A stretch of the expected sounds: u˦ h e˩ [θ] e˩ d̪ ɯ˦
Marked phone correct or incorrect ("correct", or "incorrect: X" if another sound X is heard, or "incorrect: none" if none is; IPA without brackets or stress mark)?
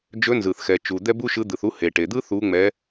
incorrect: ʈ